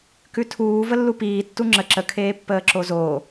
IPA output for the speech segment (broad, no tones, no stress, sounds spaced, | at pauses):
k ʉ tʰ uː v ə lː u p iː tː u ŋ͡ǁ ə ǁ ə kʰ eː pː əː ǁ o z oː